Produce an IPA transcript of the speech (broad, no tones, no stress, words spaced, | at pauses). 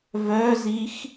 vœzix